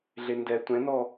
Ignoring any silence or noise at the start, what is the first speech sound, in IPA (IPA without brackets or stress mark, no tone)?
ɮ